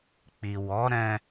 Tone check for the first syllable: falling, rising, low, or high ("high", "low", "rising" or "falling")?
low